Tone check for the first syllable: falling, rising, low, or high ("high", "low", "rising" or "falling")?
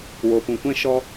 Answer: low